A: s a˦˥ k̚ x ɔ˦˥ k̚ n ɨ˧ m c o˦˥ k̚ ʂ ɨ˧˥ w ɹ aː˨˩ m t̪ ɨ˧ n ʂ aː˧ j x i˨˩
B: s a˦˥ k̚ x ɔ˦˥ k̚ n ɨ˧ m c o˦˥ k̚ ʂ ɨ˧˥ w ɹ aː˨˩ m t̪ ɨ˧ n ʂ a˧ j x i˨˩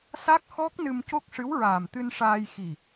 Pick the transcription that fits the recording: A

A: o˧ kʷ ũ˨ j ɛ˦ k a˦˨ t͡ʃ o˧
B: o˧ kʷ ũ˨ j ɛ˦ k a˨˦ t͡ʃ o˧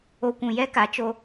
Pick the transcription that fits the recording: B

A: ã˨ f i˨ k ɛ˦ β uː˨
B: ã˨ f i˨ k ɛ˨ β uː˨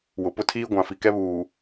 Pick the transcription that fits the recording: A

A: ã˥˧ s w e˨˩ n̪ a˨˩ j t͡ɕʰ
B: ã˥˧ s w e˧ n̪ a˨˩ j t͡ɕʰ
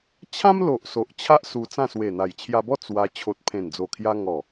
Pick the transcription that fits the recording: A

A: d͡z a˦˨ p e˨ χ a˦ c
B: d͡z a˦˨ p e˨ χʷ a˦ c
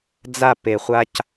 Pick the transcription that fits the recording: B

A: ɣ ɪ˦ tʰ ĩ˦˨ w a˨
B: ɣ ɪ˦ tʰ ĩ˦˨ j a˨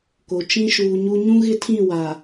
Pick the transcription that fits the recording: A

